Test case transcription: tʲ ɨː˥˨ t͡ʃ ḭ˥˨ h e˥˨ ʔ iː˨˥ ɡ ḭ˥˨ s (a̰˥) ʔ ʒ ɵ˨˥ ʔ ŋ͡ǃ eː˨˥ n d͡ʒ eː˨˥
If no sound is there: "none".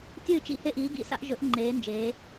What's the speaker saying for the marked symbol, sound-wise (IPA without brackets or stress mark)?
a̰˥